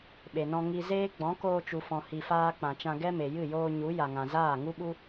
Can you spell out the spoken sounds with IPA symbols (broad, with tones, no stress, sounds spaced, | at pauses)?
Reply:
ɓ e˨ n ɔ̃˧ ŋ i˧ z eː˦ ɡ͡b ɔ̃˨˦ k oː˧ t͡ʃ u˨ f ɔ̃˨ h i˨ f aː˧ k͡p ã˨ t͡ʃ ã˧ ɡ ɛ˦ m e˨ j ɨ˦˨ j oː˧ ɲ u˨˦ j a˨ ŋ ã˨ z aː˦˨ ŋ u˦ ɓ u˦